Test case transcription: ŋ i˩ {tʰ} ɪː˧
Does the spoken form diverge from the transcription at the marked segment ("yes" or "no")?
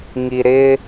yes